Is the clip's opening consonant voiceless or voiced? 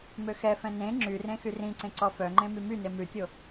voiced